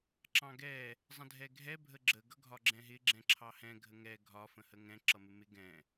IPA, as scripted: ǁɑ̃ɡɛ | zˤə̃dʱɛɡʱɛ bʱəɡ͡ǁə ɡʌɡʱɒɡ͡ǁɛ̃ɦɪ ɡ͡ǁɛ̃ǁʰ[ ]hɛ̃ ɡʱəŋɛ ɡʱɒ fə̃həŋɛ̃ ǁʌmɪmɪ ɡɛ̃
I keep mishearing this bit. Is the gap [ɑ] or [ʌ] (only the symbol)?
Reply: ɑ